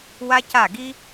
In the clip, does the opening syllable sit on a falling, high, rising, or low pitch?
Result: high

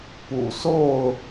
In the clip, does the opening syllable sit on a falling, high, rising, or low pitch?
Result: low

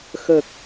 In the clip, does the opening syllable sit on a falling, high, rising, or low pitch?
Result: low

